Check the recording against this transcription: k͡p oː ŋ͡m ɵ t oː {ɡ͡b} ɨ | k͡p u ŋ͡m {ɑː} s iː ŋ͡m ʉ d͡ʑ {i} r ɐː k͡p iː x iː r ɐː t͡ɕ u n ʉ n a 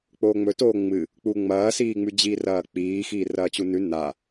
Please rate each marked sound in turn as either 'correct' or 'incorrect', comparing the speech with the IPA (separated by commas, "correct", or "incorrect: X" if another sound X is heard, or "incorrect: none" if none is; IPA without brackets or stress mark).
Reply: incorrect: ŋ͡m, incorrect: ɐː, incorrect: iː